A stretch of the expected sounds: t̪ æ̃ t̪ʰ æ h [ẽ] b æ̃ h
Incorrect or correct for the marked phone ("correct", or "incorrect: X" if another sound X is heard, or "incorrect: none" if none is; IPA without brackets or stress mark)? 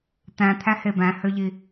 incorrect: e